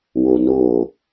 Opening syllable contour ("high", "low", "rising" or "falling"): low